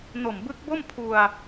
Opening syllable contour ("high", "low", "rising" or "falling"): low